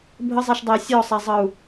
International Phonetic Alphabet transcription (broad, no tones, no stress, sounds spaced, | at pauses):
bʱ ə zˤ ɛ ʃ dˤ ɛ i̯ sʲ ɔ sˤ a zˤ ʌ u̯